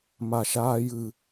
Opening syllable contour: low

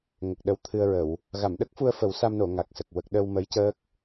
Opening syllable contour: low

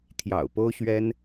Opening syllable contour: low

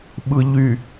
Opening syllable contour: low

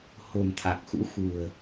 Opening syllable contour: low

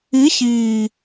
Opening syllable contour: rising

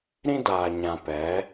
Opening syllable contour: high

